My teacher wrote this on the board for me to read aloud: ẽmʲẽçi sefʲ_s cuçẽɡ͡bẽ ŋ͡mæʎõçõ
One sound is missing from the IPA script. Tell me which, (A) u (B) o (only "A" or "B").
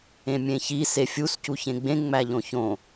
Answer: A